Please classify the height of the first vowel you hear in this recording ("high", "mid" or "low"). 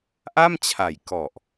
low